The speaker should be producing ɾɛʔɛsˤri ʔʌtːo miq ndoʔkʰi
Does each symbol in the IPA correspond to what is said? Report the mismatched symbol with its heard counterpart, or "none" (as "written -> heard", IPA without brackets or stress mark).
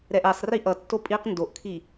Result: m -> pʼ